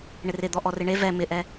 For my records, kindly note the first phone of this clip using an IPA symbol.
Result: ɳ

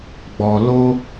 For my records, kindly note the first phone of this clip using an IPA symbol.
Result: ɡ͡b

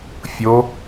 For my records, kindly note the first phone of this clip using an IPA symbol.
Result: fʲ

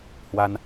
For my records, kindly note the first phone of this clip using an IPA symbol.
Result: h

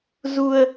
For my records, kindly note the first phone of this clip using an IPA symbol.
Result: z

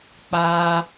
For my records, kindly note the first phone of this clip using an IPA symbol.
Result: k͡p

